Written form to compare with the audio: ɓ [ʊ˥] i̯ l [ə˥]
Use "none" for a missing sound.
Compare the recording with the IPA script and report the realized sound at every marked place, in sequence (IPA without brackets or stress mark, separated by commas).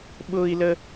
ʊ˥, ə˥